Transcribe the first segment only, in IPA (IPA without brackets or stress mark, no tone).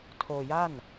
tʰ